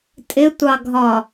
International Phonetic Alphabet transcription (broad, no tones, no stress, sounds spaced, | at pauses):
tʼ ɪ tʷ ɑ ɡʱ ɒ